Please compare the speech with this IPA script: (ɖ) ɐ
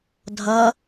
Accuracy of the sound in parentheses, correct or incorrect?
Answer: incorrect